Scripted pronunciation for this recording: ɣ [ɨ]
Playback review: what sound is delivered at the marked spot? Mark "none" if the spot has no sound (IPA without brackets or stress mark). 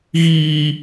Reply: i